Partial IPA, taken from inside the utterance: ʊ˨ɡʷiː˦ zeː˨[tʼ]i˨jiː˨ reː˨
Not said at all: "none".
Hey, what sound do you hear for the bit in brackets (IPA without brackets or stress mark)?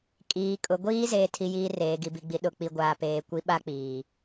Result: tʰ